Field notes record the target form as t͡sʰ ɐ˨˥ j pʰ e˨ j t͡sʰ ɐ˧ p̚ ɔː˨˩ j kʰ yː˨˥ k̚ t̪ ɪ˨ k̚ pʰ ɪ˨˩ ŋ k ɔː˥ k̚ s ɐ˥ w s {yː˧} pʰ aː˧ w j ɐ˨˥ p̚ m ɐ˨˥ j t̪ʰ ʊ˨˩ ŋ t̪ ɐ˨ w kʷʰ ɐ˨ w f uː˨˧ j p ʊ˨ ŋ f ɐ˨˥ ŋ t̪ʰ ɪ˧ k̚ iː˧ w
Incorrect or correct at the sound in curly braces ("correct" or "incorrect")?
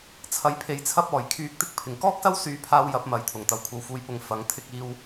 correct